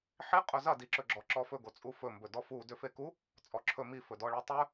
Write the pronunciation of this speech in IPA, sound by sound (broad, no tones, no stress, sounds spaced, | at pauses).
ħ i qʼ ɵ z ɐ d i ǁ ɵ ɡ͡ǁ ɔ ǁ ɔ f ɵ ɡ o t͡sʼ u f ɵ m b ɵ d ɔ f u d ʏ f e k u | t͡sʼ ɔ ǁʰ ɵ m i f ɵ d ɔ ɭ e tˤ ɵ